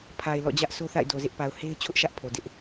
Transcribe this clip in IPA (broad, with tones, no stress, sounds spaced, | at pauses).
pʰ a˨ ɪ̯ l ɔ̰˦˨ d͡ʑ ä˦ ʔ s o˦ θ a̰˦˨ ɪ̯ d o˨ z ɪ˦ ʔ p a˨ ʊ̯ h e˦ ɪ̯ t͡ɕʰ ʊ˦ ʔ ʃ ä˦ ʔ pʰ o˨ d ɪ˦ ʔ